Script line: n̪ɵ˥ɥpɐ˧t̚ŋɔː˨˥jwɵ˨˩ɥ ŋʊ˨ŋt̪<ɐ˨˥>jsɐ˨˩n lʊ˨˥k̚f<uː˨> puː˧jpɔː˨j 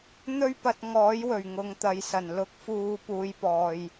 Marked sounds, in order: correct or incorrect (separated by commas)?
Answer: incorrect, correct